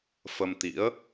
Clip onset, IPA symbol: f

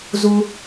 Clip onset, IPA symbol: z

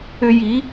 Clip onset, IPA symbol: ʏ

